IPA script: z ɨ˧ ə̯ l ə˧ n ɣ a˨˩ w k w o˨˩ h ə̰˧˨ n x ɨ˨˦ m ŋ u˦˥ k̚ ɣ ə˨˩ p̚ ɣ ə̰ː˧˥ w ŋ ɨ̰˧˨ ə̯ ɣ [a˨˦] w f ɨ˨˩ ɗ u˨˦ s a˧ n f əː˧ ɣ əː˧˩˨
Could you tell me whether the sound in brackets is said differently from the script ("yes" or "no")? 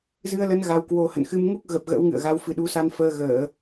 no